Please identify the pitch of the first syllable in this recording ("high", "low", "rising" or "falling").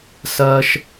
high